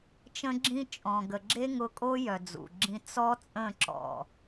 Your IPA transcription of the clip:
t͡ʃ ə̃˧ ɡ͡ǁ ĩ˧ t͡ʃʼ ɔ̃˨ ɡ ə˨ ɡ͡ǁ e˦ ŋ ʊ˧ kʼ o˦ j œ˨ d͡z ṵ˨ ɡ͡ǁ ĩ˧ t͡s ɔ˦ t͡sʼ ə̃˦˨ ǁ ɔ̰˨

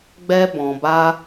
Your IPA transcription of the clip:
ɡ͡b ɛ˦ b ɔ̃˧ b a˦

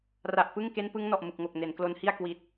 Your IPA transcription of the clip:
r a˨˩ ʔ p ɯ˥˩ ŋ k e˦˥ n p ɯ˦˥ ŋ n ɔ˨˩ ʔ m ɯ˨˩ k̚ ŋ o˨˩ k̚ n e˩˦ n k l o˧ n h i˥˩ a̯ k w i˨˩ t̚

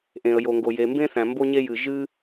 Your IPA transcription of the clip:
ʔ ẽ˩ ə̯ j o˩ ŋ ɡ o˩ j e˩ m b ẽ˥ θ æ̃˩ m b o˥ ɲ e˥ j ɨ˩ ʒ ɨ˥

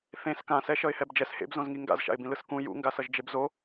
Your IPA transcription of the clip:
θ ẽ s k ã s ɛ ʃ ʌ ɪ̯ h ɛ b d͡ʒ ɛ s h ḛ b z õ z ŋ i ŋ ɡ a̰ z ʃ a̰ ɪ̯ b ĩ l ɯ s k ũ j ṵ ŋ ɡ a s ʌ ʒ d͡ʒ e b z o

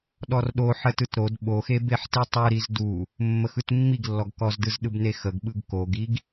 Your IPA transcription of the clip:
ɗ ɔ r ɗ o ħ ə t ɯ t ɾ o d ɓ o x e b e ħ t i tˤ ɯ ɾ i z d u | mː ə x ɯ t mː i ɡ lː ɔ ɡ k ɔ z d ɯ z ɗ ɯ b n e x ə ɡ ɓ ɯ ɡ k o ɡ i ɡ

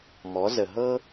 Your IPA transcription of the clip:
m ɔ˩˧ z ə˩ ɦ ɤ˧

